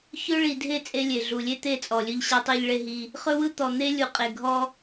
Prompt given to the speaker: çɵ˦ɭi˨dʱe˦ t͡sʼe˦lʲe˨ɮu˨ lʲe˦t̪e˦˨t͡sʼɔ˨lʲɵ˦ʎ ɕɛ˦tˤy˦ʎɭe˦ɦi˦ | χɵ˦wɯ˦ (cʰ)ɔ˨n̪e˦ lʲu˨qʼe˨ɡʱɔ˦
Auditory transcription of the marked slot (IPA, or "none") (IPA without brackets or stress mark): t̪